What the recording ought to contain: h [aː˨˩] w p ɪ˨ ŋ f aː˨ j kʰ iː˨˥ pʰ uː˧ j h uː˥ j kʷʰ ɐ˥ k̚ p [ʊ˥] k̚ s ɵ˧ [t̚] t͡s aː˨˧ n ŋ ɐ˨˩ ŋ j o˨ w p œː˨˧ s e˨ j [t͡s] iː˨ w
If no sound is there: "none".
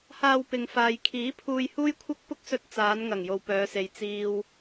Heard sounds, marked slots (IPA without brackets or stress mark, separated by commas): aː˧, ʊ˥, t̚, t͡s